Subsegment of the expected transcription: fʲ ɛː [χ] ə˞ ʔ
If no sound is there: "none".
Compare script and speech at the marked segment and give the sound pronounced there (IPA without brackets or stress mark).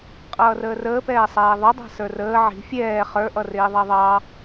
χ